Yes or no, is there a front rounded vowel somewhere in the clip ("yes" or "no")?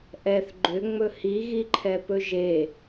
yes